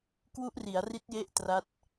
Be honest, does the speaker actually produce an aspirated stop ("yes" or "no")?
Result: no